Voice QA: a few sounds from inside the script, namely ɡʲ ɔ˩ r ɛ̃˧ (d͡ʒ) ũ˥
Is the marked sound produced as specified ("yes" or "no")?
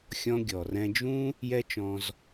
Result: yes